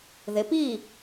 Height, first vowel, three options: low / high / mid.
high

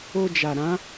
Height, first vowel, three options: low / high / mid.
mid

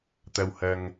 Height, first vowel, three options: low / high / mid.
low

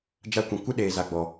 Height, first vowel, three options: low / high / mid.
low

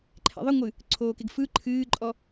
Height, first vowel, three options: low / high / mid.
mid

